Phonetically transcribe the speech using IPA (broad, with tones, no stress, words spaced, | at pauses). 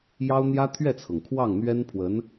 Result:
jɑ˥ʊ̯ n̪jä˥t̪ʰɥɛ˥˩t͡sʰɤ˩ŋ kʰwɑ˥˩ŋ n̪ɥɛ˥npʰwə˧˥n